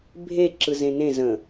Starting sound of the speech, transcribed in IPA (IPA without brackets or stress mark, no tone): bʱ